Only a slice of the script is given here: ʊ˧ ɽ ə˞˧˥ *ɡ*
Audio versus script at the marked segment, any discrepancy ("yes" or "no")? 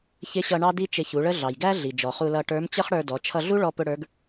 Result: no